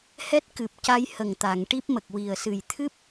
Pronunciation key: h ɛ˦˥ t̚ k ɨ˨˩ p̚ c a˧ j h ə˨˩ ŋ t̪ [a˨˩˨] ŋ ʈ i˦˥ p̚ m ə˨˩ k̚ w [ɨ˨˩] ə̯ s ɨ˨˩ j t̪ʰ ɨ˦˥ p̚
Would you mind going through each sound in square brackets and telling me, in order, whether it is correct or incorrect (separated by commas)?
correct, incorrect